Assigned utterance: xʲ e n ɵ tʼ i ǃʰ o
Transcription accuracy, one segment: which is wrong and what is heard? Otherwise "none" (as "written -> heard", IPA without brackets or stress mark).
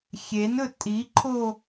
none